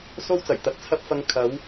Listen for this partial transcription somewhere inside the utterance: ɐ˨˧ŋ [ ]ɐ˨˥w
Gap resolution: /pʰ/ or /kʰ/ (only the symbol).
kʰ